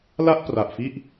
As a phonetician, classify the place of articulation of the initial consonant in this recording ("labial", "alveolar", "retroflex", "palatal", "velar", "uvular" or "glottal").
alveolar